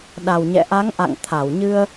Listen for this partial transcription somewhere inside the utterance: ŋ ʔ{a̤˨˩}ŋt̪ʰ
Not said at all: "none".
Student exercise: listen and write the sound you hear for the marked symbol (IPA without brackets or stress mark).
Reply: a̰˧˨